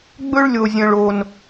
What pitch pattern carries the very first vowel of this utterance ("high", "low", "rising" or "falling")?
high